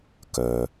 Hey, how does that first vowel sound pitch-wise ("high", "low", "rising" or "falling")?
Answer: low